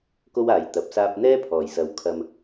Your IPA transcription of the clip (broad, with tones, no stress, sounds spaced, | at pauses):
k o˥ w aː˨ j t̪ ɐ˨˥ p̚ s aː˥ p̚ n̪ ɛː˥ pʰ ɔː˨˩ j s ɐ˨ w kʰ ɐ˧ m